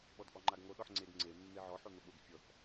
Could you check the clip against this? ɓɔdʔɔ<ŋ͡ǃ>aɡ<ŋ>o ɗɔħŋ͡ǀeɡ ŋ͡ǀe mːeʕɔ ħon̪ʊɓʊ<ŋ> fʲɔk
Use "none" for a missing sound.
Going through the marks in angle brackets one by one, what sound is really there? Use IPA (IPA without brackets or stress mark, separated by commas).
ŋ͡ǃ, ŋ, ɡ